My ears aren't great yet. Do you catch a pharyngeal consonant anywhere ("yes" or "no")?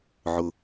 yes